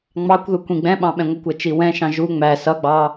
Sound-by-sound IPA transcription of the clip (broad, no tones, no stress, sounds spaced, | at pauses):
ŋ͡m ɑ kʷ ð u kʷ ĩ ɡ͡b ɛ̃ ɓ ɑ̃ ɓ ɛ̃ ŋʷ ə kʷ æ t͡ʃ i w ɛ̃ ʃ ɑ̃ ʒ u ŋ͡m æ s ʌ ɡ͡b ɑ